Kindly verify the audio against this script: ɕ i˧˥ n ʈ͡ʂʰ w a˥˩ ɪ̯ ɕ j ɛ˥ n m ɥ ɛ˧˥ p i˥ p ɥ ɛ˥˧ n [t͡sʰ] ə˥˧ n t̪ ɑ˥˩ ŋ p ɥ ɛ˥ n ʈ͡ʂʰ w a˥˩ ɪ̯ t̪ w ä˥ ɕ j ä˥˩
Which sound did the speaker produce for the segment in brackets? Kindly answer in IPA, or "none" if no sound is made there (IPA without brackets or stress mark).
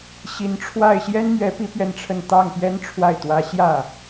ʈ͡ʂʰ